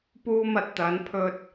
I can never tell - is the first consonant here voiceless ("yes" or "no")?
yes